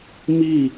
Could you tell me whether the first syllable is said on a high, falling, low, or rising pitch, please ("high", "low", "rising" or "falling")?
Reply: falling